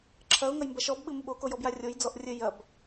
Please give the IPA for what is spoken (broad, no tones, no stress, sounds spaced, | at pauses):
ǁʰ ɐ ʊ̯ ŋ ɐ j m b ɐ ʃ ɔ b ɓ ɨ m u ɓ o k o j ɔ b j a rʲ o j d͡z ɔ ʔ rʲ ɘ j ɐ b